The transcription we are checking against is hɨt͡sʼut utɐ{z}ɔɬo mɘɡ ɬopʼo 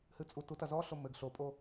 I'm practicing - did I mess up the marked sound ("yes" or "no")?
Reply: no